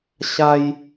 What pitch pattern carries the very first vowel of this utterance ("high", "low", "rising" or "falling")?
high